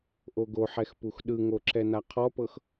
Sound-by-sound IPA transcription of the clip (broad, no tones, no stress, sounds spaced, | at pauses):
ʔ o ɡ o ħ ɛ x p u x ɗ ɯ ŋ o ǁ ɛ n a qʰ ɔ p ɤ x